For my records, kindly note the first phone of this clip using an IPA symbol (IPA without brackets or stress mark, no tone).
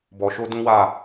b